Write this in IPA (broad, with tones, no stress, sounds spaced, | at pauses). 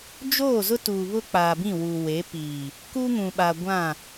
d͡ʒ oː˦˨ z ʊ˦ t uː˨ β ʊ˦ k͡p aː˨ b ĩ˦˨ w uː˨ w e˨˦ p iː˨ | k uː˦ ŋ ũ˨ ɓ a˨ ɡʷ ã˦˨